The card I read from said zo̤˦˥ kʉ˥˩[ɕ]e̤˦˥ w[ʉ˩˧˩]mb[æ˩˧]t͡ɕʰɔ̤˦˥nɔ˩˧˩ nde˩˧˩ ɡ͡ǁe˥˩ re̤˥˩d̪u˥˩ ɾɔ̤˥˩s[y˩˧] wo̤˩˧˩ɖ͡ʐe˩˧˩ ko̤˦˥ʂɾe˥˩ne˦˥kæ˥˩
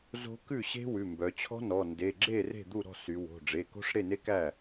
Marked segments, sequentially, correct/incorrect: correct, correct, incorrect: œ˩˧, correct

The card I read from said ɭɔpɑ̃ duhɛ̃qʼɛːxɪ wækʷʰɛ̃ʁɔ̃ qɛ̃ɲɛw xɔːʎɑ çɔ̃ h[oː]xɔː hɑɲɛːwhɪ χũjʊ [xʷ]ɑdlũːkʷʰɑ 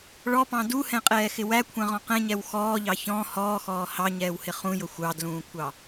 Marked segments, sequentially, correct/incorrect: incorrect: ɔː, correct

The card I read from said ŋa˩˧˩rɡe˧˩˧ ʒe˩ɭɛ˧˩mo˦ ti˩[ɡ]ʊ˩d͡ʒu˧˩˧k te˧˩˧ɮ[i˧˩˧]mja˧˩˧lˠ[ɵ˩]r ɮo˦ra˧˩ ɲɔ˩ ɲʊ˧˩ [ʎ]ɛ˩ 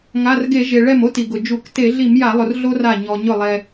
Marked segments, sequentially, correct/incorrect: correct, correct, incorrect: ʊ˩, incorrect: lˠ

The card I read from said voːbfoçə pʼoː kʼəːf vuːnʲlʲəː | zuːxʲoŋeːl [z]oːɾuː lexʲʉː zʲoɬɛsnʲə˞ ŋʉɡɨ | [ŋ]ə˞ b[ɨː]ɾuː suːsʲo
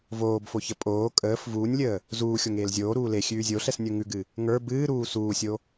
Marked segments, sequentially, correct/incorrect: incorrect: zʲ, correct, correct

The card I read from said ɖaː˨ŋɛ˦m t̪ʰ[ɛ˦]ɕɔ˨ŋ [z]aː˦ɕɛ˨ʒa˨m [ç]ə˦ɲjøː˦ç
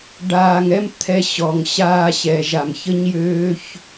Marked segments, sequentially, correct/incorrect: correct, incorrect: ɕ, correct

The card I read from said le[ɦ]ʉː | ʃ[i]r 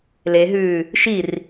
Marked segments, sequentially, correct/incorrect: correct, correct

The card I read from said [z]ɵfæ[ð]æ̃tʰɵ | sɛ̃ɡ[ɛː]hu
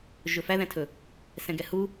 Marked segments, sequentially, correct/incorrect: incorrect: ʒ, correct, incorrect: ɛ

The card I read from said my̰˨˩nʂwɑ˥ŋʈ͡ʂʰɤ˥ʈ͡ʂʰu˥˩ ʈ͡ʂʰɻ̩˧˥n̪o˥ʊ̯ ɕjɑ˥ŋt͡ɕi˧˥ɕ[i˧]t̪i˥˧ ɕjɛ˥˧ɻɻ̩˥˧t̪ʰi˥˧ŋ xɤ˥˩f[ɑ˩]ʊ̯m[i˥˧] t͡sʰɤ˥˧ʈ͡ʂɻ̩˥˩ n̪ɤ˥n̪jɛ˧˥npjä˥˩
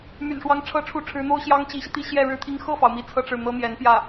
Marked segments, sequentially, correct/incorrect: correct, correct, incorrect: i˧˥

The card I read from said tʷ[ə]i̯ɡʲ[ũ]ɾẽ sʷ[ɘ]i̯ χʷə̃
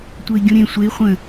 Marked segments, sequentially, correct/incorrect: correct, correct, incorrect: e

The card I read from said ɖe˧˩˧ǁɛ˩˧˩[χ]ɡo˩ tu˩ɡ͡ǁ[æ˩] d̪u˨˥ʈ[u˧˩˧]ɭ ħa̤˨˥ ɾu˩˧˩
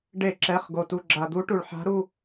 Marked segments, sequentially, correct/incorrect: correct, incorrect: a˩, incorrect: u˩

